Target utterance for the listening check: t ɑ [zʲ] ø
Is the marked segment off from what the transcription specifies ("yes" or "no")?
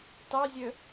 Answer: no